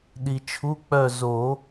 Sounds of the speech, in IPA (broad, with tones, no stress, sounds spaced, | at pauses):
ɗ i˨ t͡ʃʰ u˧˥˧ k͡p œ˦˨ z o˨˩˦